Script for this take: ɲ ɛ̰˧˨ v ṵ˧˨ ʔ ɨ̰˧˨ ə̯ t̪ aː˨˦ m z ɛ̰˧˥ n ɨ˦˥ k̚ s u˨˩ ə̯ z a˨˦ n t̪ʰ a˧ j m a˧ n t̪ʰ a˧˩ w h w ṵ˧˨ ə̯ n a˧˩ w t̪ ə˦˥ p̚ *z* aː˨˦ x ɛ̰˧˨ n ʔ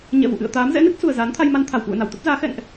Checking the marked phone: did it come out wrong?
no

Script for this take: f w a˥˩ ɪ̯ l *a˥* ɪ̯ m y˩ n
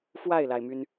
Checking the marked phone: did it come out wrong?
yes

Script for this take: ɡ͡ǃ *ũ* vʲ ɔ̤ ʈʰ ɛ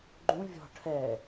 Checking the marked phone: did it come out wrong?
no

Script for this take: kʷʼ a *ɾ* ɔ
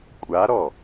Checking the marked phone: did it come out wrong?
no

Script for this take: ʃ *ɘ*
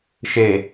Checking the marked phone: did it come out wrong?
yes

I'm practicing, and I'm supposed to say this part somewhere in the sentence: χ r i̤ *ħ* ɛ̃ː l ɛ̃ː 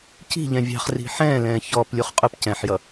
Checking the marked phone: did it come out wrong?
no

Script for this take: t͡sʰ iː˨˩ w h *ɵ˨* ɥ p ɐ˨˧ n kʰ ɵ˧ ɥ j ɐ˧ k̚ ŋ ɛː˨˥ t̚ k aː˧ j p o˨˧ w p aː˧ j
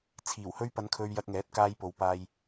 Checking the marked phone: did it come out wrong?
yes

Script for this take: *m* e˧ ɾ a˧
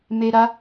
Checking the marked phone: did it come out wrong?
no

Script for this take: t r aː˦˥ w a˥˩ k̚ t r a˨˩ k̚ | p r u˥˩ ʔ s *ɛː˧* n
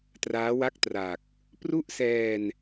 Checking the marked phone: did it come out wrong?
no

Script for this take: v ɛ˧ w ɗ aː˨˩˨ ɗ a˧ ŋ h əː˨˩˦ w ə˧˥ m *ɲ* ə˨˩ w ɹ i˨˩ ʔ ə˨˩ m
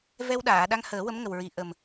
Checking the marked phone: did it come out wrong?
yes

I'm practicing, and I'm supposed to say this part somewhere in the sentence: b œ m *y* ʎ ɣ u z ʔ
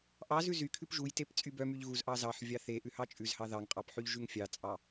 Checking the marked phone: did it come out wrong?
no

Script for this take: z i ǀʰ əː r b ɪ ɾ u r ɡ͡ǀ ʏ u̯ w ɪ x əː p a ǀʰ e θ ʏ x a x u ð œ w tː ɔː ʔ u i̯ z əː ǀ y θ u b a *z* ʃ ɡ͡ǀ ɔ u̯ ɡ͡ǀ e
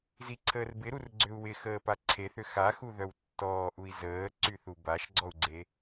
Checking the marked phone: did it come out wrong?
yes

